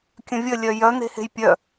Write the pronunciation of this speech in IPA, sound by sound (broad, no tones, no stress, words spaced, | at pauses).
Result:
kʲə̃vʲə lʲœjœ n̪e̤he̤jpʲœ